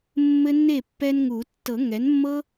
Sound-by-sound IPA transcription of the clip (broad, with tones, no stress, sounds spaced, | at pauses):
mː ɘ˦ nː e˥˩ pː ɛ˦ n ŋ u˨˩˦ tː ɤ˨˩˦ ŋ ɛ˩˥ n mː ɤ˦